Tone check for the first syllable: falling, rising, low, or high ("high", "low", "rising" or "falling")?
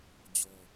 high